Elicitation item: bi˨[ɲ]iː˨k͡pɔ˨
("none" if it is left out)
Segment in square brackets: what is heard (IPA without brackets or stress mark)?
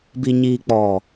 ɲ